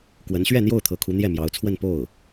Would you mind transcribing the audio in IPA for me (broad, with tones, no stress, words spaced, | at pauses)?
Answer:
kwə˧˥nɕɥɛ˥˧n̪jo˥˩ʊ̯t̪ʰɤ˧˥ kʰu˧˥n̪jɛ˥˩mjɑ˧˥ʊ̯t͡sʰwə˥˧n po˥˩ʊ̯